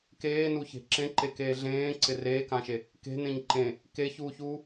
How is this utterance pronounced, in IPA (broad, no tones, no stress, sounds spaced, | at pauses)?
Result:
k eː n u ç e̤ ǁ ẽ ǃ e k eː ɮ ẽː ǀ ɪ r eː k ã ʃ e | k e̤ n ẽ ɲ ǃ ẽ | k e ç uː ç uː